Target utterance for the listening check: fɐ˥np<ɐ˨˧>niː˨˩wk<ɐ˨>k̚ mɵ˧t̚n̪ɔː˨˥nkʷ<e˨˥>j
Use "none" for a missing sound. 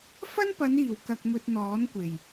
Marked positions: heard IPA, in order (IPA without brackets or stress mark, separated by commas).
ɐ˨˧, ɐ˨, e˨˩